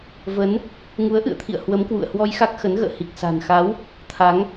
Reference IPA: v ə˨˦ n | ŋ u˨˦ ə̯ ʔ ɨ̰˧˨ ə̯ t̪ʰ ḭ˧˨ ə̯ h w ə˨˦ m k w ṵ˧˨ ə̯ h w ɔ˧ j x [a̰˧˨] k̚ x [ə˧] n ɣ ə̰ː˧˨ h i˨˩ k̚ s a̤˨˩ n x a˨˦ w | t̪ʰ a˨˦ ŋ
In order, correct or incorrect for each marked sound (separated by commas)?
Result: incorrect, incorrect